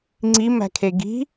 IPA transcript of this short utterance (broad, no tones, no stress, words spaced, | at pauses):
ŋ͡ǀimæ̤kʰe ɡi̤